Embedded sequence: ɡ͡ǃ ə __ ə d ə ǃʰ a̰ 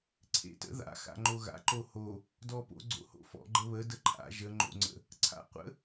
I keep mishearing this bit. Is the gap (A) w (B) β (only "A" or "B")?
B